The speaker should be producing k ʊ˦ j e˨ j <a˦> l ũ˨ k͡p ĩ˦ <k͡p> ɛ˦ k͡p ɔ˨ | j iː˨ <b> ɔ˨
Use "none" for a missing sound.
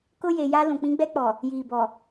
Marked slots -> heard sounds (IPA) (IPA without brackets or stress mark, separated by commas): a˦, ɡ͡b, b